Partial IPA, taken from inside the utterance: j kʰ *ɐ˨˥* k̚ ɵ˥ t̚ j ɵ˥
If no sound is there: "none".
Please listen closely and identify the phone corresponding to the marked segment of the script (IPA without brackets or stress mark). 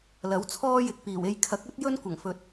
ɐ˨˥